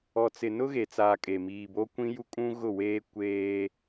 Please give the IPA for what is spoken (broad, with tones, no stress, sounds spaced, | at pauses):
ɔ˨ t͡s ɪ˨ n ʊ˦ ɣ e˨ t͡s aː˨ kʼ e˨ m iː˨ b o˦ kʷ ĩ˦ j u˦ kʼ ũ˦ ɣ ʊ˦˨ w eː˦ kʷ eː˦